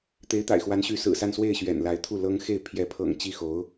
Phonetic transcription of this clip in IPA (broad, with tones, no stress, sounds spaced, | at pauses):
t̪ e˧˥ ɪ̯ t̪ a̰˨˩ ɪ̯ x w a˧˥ n ɕ y˧˥ s ɹ̩˨˩ s a˥˧ n s w e˥˩ ɪ̯ ɕ ɥ ɛ̰˨˩ n l a˧˥ ɪ̯ t̪ʰ u˥˩ l ɤ˥ ŋ x e˥˩ ɪ̯ pʰ j ɛ˧˥ pʰ ɤ̰˨˩ ŋ t͡ɕ i˥˩ x o˧˥ ʊ̯